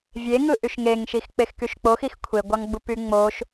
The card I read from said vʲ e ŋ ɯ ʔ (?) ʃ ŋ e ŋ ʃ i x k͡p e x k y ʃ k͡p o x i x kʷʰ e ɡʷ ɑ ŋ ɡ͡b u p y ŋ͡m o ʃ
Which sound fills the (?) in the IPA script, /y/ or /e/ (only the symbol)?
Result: y